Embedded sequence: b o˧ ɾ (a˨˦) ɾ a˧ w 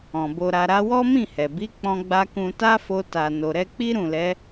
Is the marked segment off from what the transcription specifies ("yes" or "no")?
yes